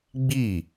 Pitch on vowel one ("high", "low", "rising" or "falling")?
falling